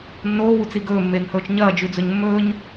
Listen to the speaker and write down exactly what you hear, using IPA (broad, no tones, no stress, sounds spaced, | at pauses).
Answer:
nː oː w u t͡s i ɡ ɵː mː eː ŋ h ɵː t͡ʃ ɲ ɐː d͡ʒ ʉ d͡z ɵ ɲ mː ɵː ɲ